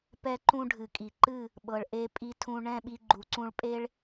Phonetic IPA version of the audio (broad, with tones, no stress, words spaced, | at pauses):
pɛ˧ǃũ˧ ɖʱɨ˨kʼi˨ǃɨ˦˨ | ɓɤ˨ɭʔe˧ pʼi˧tʰũ˧ ɳɛ̃˦˨ɓi˧ ɡ͡ǃu˨ǀũ˧ɭpʼe˦ɭ